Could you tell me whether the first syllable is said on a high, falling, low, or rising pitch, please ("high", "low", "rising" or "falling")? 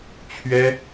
high